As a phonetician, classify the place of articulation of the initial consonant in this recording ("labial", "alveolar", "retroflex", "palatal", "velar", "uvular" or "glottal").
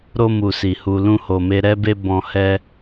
alveolar